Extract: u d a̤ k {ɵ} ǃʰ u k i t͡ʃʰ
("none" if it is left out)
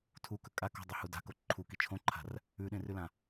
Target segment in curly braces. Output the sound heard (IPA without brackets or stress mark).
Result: o